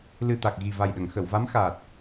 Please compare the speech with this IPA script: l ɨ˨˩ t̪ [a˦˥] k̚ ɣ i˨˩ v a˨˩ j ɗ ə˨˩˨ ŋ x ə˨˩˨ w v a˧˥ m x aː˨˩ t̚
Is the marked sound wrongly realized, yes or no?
yes